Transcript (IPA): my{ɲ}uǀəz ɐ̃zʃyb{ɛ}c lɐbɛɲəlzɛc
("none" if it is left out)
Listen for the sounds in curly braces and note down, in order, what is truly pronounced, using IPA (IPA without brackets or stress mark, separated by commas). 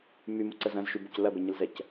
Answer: m, ʏ